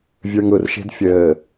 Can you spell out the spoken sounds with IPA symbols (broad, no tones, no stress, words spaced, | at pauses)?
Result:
vʲə˞ŋʊrʃe̤d fʲəː